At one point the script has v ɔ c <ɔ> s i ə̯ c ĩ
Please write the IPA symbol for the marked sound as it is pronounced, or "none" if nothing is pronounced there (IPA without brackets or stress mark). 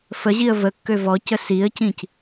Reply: ə